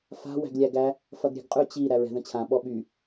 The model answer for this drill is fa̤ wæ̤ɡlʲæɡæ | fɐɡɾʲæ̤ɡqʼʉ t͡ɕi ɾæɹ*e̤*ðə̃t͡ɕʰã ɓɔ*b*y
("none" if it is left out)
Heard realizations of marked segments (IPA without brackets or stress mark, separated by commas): ɛ̤, ɓ